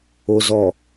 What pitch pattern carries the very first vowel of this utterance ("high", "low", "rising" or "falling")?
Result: low